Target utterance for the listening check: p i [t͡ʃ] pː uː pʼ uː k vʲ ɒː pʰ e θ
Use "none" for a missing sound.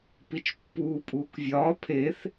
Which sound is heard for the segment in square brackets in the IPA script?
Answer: t͡ʃ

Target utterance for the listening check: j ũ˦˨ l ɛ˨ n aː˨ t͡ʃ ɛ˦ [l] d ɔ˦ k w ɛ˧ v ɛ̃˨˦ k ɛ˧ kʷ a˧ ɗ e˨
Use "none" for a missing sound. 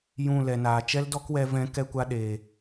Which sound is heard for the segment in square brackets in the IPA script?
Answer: l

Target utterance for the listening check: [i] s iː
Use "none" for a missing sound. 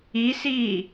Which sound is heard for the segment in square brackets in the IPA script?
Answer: i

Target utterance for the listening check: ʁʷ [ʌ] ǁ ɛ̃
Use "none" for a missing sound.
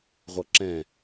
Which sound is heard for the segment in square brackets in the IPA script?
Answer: ʌ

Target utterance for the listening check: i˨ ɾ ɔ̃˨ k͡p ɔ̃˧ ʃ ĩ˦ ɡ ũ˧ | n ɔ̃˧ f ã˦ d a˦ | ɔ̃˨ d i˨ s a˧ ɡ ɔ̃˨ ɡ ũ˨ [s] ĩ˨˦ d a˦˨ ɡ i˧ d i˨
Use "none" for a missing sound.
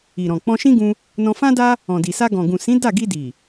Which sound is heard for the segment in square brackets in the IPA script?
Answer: s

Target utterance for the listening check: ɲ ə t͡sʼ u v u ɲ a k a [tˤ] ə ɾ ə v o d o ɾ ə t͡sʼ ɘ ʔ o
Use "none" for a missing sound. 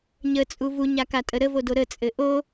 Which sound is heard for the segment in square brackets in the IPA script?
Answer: tʼ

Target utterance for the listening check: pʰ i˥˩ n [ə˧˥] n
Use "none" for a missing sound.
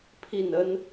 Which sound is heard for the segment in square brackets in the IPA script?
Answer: ə˥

